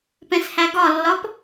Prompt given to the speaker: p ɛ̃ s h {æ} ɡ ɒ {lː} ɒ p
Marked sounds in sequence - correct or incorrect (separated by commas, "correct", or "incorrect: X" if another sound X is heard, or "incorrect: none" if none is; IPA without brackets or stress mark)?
correct, correct